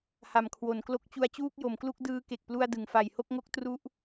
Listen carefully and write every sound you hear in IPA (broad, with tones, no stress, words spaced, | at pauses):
ha˨˩mkʰwo˩˦nklo˦˥k̚ t͡ɕu˧a̯t͡ɕuː˥˩k̚jo˩˦mklu˥˩k̚ dɯː˧ke˨˩k̚plu˧a̯ dɯ˩˦ŋfa˨˩jho˥˩k̚ŋo˦˥k̚ tru˦˥ʔ